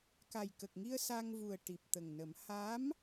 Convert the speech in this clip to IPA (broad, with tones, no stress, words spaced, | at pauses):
ka˨˩jkə˨˩k̚ŋi˧ə̯ sa˧ŋvu˨˩ə̯ ʈi˨˩p̚t̪ə˨˩ŋnə˨˩˦m ha˧˥m